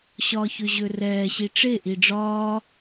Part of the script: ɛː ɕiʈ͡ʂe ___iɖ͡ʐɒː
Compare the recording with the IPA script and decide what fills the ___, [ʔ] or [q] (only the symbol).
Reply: ʔ